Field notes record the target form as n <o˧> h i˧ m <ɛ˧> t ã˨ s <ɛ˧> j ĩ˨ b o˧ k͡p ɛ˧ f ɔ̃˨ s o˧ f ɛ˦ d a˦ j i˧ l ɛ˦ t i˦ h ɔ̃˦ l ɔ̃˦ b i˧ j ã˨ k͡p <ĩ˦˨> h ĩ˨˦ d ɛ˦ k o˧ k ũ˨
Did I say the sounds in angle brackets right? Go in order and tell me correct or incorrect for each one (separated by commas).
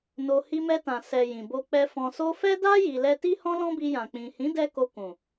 correct, correct, incorrect, incorrect